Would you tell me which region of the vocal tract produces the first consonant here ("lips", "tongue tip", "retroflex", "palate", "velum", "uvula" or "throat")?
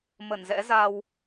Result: lips